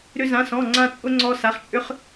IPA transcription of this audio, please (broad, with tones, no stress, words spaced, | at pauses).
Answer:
ɾʏ˥zã˧˥˧sɔ̃˧˥˧ ŋ͡ǀã˥t͡sʼʊ˥ ŋ͡ǀɔ˥sa˧˥˧χ t͡ʃʼʏ˥χ